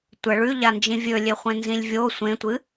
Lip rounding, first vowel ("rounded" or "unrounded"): unrounded